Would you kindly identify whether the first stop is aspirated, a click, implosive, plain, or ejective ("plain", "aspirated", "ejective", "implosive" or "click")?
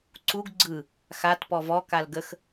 click